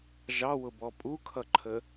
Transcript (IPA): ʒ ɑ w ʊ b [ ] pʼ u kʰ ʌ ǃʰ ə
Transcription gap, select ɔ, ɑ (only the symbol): ɔ